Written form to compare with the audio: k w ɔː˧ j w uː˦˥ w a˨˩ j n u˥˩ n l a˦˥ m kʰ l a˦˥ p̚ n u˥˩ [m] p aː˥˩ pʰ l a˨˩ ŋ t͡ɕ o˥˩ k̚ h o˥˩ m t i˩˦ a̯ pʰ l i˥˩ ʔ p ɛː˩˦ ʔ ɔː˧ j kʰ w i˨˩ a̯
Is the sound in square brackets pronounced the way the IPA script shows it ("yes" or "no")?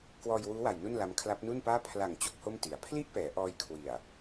no